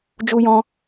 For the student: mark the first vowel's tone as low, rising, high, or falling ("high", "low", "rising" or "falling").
high